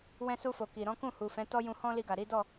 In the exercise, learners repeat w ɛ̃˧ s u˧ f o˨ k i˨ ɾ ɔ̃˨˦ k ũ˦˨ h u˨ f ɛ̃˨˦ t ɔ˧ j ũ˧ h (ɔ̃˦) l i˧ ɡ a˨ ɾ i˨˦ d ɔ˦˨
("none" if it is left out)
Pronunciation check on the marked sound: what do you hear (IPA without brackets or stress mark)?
ɔ̃˦